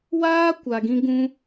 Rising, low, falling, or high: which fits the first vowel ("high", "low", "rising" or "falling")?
high